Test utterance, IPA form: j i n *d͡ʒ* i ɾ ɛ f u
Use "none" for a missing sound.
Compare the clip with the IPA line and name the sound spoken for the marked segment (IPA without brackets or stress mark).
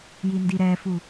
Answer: d